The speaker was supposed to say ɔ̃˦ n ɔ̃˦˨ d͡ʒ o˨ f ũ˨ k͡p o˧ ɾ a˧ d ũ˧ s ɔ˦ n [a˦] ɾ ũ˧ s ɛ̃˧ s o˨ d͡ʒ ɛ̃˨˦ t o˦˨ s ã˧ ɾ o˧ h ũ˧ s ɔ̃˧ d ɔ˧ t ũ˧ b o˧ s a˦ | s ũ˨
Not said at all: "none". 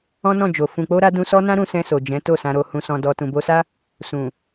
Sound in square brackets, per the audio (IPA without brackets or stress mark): ã˦